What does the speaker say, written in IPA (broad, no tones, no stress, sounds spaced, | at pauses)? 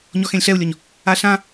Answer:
ɲ ɔ x ẽ lʲ ɬ ɛ u̯ lʲ ɔ ɲ | a ɬ ã